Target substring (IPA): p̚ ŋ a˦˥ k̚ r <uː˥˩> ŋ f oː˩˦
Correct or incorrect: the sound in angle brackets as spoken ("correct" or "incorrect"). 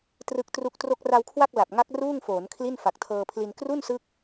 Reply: correct